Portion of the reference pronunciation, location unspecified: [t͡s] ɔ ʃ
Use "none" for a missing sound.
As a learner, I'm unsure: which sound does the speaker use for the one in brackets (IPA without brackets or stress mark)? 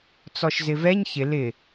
t͡s